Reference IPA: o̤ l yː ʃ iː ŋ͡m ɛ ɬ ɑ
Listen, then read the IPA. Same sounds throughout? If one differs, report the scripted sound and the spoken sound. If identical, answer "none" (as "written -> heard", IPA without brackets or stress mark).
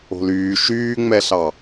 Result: iː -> yː